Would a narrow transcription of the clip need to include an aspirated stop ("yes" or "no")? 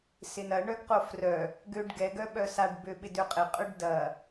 no